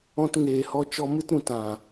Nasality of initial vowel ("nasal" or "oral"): nasal